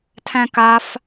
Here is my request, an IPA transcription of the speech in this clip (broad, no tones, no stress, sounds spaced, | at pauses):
tʰ æ̃ k a f